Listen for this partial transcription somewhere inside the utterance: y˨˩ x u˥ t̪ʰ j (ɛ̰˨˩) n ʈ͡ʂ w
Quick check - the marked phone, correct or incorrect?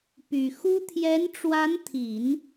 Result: incorrect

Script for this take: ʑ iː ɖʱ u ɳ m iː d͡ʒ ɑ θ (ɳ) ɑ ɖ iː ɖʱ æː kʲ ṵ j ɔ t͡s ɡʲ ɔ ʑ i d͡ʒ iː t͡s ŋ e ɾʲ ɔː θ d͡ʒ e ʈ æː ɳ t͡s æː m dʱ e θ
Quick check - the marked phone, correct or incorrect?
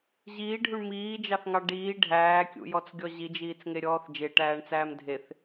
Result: incorrect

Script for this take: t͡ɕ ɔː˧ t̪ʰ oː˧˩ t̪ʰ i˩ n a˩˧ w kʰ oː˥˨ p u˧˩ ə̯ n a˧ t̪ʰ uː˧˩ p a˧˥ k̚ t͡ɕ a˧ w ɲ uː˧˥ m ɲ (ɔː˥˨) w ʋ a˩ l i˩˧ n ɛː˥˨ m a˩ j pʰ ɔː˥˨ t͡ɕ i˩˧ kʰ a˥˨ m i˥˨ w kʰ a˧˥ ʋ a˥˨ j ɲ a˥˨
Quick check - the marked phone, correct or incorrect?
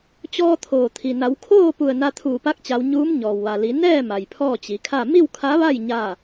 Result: incorrect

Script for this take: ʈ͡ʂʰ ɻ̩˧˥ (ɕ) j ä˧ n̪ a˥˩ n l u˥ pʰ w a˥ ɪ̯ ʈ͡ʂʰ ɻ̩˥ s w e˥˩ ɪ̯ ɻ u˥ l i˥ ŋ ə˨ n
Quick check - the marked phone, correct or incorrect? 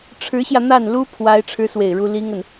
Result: correct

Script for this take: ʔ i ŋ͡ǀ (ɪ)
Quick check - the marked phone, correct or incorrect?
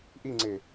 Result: correct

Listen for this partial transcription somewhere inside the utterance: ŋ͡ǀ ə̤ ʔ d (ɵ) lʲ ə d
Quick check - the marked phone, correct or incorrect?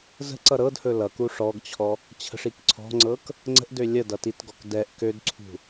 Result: incorrect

